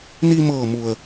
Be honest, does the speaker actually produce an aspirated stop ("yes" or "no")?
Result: no